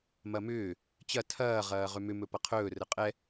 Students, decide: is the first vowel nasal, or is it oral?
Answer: oral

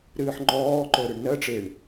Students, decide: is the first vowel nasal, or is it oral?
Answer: oral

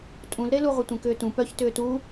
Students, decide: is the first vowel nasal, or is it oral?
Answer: nasal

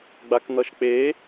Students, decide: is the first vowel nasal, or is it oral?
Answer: oral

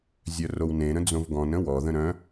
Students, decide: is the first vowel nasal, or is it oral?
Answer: oral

